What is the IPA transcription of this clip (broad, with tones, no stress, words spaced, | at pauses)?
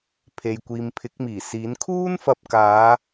pʰe˨jkʷiː˨mpʰɪ˨˥k̚ miː˨˩siː˨˥n kʰuː˥nfɐ˧p̚kaː˨˧